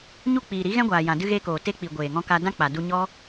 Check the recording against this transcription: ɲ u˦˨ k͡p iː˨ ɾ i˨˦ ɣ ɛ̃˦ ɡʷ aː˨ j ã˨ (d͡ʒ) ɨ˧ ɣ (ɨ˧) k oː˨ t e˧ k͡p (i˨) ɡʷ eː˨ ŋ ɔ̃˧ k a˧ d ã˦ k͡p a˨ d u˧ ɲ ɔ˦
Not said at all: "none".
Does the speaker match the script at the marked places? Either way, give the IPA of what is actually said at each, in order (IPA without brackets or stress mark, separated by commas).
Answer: d, e˧, i˨